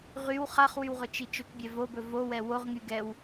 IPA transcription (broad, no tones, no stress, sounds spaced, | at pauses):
ʁ y w χ a χ w y w ʁ ɵ t͡ʃ i t͡ʃ ɵ k bʲ ɛ v o b ɵ v o w ɛ w o ʁ ŋ y ɡ ɛ w